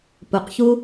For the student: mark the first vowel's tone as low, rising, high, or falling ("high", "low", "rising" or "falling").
low